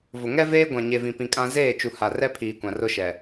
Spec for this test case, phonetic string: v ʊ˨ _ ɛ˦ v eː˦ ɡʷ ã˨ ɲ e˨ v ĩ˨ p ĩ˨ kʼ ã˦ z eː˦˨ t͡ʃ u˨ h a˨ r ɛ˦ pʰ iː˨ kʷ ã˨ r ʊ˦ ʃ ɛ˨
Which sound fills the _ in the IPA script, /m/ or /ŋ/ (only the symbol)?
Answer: ŋ